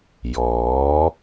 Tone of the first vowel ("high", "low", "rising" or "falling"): rising